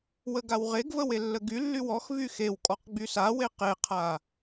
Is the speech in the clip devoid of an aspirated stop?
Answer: no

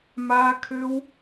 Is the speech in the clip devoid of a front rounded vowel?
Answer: no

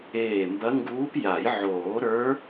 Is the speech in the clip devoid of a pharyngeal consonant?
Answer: no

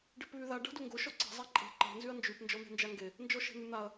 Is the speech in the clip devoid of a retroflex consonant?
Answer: no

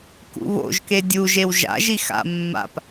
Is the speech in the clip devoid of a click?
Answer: yes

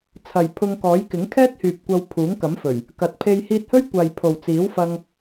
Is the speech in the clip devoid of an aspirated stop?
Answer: no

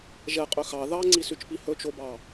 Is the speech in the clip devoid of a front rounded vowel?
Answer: no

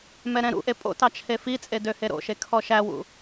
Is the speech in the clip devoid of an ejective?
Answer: no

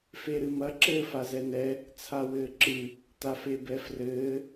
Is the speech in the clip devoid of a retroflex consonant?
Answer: yes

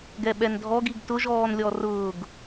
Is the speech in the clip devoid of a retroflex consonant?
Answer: yes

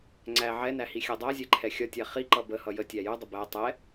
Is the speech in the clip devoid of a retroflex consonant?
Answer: yes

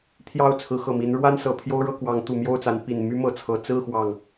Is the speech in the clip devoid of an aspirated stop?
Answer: no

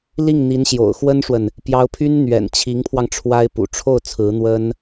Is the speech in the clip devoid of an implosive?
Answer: yes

